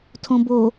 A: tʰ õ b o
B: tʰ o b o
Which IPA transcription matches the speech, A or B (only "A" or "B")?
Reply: A